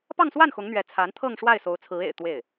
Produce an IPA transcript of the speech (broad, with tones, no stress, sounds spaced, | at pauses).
p ɑ˥˧ ŋ s w a˥˩ n x ʊ˧˥ ŋ n̪ ɥ ɛ˧˥ t͡sʰ a˧˥ n t̪ʰ ɤ˥˧ ŋ ʂ w a˥˩ ɪ̯ s o˧˥ ʊ̯ t͡sʰ ɹ̩˧˥ ḛ˨˩ ɪ̯ t̪ w e˥˩ ɪ̯